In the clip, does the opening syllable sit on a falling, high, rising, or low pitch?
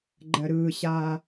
low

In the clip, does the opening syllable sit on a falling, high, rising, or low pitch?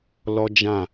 high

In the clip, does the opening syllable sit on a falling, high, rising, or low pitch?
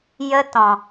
high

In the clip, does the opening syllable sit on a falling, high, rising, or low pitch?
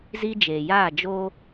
high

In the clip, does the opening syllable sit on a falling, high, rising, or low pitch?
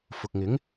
low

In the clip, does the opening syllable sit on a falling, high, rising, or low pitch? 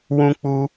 high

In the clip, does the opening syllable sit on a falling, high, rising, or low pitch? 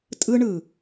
high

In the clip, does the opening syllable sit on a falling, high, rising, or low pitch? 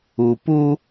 low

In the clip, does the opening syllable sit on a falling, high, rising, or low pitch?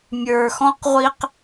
low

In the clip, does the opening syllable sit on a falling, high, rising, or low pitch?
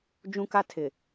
high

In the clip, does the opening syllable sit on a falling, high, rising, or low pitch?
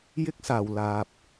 high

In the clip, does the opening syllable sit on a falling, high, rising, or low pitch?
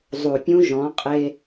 low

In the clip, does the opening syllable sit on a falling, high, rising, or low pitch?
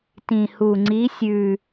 low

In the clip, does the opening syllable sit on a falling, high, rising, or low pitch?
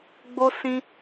high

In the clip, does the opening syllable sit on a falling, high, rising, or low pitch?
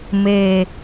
low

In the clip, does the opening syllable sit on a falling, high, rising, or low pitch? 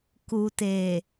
low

